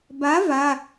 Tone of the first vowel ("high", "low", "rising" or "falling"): rising